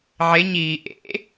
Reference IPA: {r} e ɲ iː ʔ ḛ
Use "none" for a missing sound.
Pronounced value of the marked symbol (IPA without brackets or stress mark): ʕ